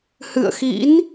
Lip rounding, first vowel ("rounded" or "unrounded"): unrounded